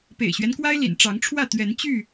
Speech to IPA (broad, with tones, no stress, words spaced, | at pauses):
pḛ˨˩ɪ̯ɕɥɛ˦nkwa˦ɪ̯lḭ˨˩n ʈ͡ʂɑ˨˦ŋʈ͡ʂʰwä˥˨ t̪ɥɛ˨˦nt͡ɕy˥˨